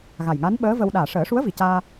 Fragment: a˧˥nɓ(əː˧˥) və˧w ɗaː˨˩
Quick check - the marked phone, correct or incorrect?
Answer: correct